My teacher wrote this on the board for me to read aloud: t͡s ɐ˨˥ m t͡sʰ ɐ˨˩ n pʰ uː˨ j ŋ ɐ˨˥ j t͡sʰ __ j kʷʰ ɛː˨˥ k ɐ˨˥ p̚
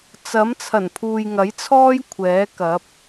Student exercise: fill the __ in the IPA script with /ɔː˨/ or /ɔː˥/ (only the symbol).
ɔː˥